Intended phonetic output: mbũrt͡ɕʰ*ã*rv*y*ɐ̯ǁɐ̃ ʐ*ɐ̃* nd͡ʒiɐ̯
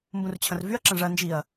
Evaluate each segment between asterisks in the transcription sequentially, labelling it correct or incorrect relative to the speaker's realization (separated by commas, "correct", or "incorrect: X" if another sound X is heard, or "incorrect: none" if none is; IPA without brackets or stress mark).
incorrect: ɐ̃, correct, incorrect: ɐ